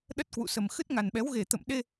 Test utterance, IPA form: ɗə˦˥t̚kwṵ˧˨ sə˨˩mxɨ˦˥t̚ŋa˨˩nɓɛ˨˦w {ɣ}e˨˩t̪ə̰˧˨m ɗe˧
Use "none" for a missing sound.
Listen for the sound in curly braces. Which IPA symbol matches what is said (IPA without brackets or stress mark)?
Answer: ɣ